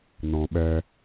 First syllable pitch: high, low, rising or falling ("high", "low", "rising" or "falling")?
low